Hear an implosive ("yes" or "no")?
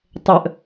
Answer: no